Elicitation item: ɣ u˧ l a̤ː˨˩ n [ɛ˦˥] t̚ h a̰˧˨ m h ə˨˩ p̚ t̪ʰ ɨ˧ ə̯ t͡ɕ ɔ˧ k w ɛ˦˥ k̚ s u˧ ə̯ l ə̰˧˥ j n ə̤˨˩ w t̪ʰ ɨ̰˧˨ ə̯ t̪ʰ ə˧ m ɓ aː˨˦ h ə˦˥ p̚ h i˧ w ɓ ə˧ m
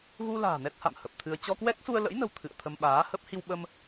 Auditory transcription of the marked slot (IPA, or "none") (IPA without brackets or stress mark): ɛ˦˥